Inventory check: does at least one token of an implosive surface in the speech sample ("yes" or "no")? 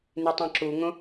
no